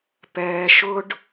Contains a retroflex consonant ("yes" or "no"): yes